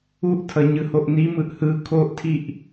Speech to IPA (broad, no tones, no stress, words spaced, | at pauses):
uʔtʰʌ ɲɯhoʔnimɯʔ hɯ kʰoʔtʰiʔ